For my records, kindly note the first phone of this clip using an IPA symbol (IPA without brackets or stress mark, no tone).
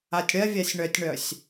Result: a